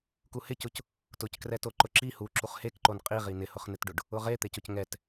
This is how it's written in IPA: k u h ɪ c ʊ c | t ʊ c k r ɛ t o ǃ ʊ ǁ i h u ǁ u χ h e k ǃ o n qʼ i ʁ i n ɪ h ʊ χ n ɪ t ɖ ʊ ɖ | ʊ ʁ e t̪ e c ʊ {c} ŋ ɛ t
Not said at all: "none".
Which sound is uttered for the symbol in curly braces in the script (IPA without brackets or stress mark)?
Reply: c